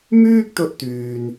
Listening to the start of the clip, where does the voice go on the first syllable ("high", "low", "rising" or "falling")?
high